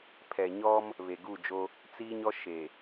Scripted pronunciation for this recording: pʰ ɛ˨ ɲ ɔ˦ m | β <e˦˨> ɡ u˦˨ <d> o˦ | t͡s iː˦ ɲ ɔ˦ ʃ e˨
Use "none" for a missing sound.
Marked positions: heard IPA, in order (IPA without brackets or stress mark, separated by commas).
e˨, d͡ʒ